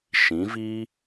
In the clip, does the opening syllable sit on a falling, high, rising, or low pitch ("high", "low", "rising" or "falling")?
rising